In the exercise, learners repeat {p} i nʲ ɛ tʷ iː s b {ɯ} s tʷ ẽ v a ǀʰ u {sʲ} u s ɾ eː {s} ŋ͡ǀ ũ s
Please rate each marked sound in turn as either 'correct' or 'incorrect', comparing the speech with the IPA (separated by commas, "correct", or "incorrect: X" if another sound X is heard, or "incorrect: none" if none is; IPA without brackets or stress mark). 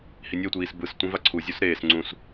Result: incorrect: h, correct, incorrect: zʲ, correct